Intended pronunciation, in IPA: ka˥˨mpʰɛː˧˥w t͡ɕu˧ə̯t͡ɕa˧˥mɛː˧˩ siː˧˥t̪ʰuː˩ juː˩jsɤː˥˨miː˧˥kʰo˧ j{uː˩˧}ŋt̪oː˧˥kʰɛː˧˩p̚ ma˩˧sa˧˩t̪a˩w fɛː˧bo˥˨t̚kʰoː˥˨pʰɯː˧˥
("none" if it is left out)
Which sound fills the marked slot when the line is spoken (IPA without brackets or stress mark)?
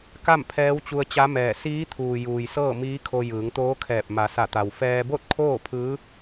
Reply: ɯː˩˧